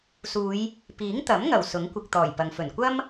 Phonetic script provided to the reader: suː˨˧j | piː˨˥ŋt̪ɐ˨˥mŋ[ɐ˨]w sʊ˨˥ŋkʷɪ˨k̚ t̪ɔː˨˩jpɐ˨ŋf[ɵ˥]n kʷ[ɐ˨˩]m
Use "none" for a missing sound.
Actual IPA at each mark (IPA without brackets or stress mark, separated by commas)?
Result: ɐ˨˩, ɵ˨˩, ɐ˥